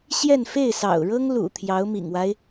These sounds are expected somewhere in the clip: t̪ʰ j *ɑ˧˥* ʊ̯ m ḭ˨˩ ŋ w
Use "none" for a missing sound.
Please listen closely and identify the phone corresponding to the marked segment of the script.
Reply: ɑ˧˥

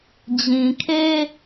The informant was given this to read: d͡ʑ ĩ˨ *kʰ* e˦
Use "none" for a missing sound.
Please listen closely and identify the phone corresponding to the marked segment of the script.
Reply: kʰ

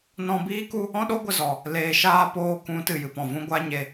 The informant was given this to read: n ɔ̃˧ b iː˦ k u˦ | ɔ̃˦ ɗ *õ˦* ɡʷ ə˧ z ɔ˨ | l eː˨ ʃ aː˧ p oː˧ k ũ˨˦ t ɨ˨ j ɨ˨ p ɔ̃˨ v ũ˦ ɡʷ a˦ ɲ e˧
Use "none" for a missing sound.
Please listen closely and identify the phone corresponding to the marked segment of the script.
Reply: o˦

